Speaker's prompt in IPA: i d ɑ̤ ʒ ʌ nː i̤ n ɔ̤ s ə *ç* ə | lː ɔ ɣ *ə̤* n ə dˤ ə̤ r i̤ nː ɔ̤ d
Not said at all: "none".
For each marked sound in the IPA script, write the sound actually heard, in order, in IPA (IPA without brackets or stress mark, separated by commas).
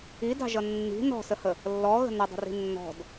h, ə̤